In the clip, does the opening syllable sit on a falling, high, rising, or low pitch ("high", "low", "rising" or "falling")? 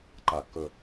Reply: low